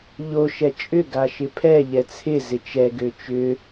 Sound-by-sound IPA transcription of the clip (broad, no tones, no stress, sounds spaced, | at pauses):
ʎ o ʃ ɛ t͡ʃʼ ʏ ɡ a ʃ ɪ pʰ ɛ ʎ ɛ t͡sʰ ɪ z ɪ t͡ʃ ɛ ɡ ø t͡ʃ ʏ